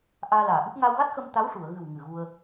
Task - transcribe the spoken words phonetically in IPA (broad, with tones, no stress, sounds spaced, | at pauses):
ʔ aː˧ l aː˨˩ ʔ ɨ˦˥ p̚ ŋ a˧ w ɣ a˦˥ t̚ x ə˧ m t̪ a˧˥ w ʂ u˨˩˨ ə̯ ɣ ɨ˨˩ w ŋ ɨ˨˩ ɣ u˧ ə̯